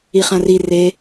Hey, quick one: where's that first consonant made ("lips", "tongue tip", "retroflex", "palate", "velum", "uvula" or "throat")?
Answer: uvula